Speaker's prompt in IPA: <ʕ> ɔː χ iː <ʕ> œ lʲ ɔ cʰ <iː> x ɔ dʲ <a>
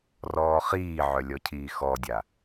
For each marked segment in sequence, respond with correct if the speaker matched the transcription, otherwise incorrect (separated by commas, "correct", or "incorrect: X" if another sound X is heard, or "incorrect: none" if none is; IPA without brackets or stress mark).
incorrect: r, correct, correct, correct